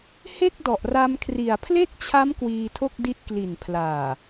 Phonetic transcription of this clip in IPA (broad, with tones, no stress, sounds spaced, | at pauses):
h e˥˩ k̚ d ɔ˨˩ ʔ r a˧ m kʰ r i˨˩ a̯ pʰ l e˥˩ k̚ t͡ɕʰ a˦˥ m k w iː˧ tʰ o˥˩ k̚ d i˦˥ t̚ k l i˨˩ n pʰ l aː˨˩